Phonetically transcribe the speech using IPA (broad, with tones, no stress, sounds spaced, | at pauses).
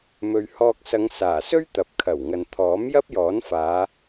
m ɵ˨ ɥ h ɔː˧ k̚ s ɐ˨˧ ŋ s aː˨˩ s ɵ˥ ɥ t̪ ɐ˨˥ p̚ kʰ ɐ˨˩ w ŋ ɐ˨ n t̪ʰ ɔː˨˥ m j ɐ˥ p̚ j ɔː˨˥ n f aː˨˧